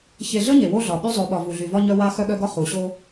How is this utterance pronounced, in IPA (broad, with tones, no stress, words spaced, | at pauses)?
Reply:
çe˨ɮə˦ ɲe˨wo˦ɮɒ˨ɓy˦ zˤo˨˦ɓɒ˨ vu˨ɮy˨vɒ˦ɲœ˦ wa˦ xœ˦ɠœ˦ɡɒ˦ χu˨ɕo˦